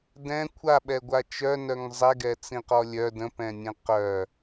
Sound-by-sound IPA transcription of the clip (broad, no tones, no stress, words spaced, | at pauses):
dɛ̃ kʷʰaɓɛɡʷa t͡ʃœnœŋ zˤɛɡɛt͡sĩqɔ lʲœ də̃pɛ̃nʲɛ̃ qœ